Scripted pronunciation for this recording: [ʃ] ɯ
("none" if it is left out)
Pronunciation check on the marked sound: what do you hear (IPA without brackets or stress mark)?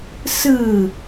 s